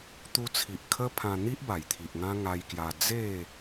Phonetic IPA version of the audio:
t̪ u˧ t͡sʰ i˨ ʔ kʰ ə˦ pʰ ã˧ n̪ i˦ ʔ b a˨˩ j t̪ʰ i˨ ʔ ŋ ã˦ ŋ a˧ j k j a˧ d͡z e˥˧

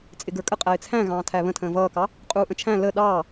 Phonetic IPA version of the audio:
t͡sʼ ɪ ɡ ə˞ kʼ ə qʼ æ ɪ̯ t͡sʰ æ̃ ɣ ɑ̃ː tʰ æ β ə̃ tʰ ə̃ː v ʌː k ɑ | qʼ uː ʔ ə̃ t͡ʃʰ æ̃ l ə ɗ ɑː

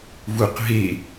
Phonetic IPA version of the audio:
v u q ɦ e

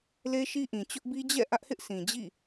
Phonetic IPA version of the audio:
l e˦ ʃ i˦ ʔ ĩ˨ t͡ɕ ʊ˦ ʔ b i˦ d͡ʑ ɛ̰˦˨ ʔ ä˦ ʔ h ɪ˦ ʔ sʰ ĩ˨ d͡ʑ ḭ˦˨

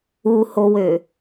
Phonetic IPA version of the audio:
u h o w ø

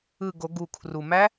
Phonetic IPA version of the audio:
ɯ˨˩ ɡ o˨˩˦ ɡ u˨˩ kʰ r u˨˩ m æ˦˥

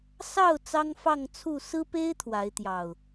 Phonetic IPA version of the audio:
s ɑ˥˨ ʊ̯ t͡s ɑ˦ ŋ f ɑ˥˨ ŋ t͡sʰ u˥˨ s ɹ̩˦ p e˦ ɪ̯ t̪ʰ w a˨˦ ɪ̯ t̪ j ɑ˨˩ ʊ̯

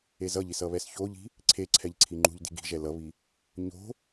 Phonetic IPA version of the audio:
e z ʌ ʎ i s ʌ β ɛ s ç o ʎ i̤ | ǀʰ e ǀʰ ɛ ʎ ǀʰ i ŋ͡ǃ ṳ ʎ d i̤ ɡ i̤ ʒ ɛ l ʌ β i | ɲ o̤

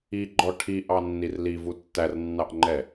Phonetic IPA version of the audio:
i ɡ͡ǃ ɔ ʈʰ i ʔ ɑ nː i r l i v u tː æ r nː ɑ ʔ ŋ͡ǃ ɛ

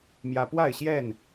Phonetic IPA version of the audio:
m j ä˦ p w a˥˨ ɪ̯ ɕ j ɛ˥˨ n

